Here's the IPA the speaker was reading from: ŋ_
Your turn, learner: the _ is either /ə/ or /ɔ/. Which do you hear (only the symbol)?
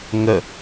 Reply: ə